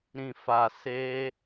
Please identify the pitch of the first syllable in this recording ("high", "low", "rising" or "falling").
low